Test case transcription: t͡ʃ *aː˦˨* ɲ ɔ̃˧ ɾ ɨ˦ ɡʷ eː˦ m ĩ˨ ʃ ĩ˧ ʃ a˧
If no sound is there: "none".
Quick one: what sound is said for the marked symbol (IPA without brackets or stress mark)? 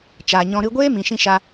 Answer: aː˨